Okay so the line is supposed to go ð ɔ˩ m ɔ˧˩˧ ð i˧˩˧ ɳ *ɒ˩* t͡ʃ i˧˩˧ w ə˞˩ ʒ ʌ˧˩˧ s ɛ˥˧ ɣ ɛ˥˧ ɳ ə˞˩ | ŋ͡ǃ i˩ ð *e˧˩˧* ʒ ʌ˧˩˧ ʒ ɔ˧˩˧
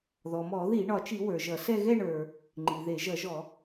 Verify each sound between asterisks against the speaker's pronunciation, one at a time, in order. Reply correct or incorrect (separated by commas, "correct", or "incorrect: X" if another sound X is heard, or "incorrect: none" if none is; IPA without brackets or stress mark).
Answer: correct, correct